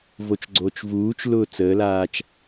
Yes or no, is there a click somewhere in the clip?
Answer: yes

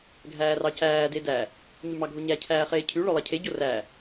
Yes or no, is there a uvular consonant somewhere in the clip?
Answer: yes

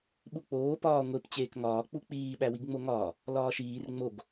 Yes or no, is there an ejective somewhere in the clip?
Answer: no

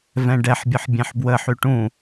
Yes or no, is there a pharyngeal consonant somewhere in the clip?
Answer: yes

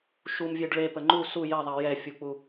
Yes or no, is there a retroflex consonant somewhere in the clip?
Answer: yes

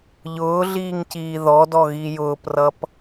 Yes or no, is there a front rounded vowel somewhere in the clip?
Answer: no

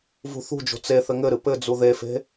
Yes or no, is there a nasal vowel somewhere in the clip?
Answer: no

